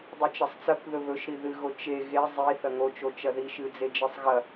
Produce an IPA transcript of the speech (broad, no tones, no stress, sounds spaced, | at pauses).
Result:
dˤ ɨ t͡ʃ ɐ sˤ t͡s ɐ k ð ɵ β ɵ ʃ ɾ i ð ɨ ɣ o t͡ʃ e ɣ e zˤ i θ ɐ ŋ o t͡ʃ o t͡ʃ ɐ ð i ʃ ɨ d͡z e d͡ʒ e sˤ ɣ ɐ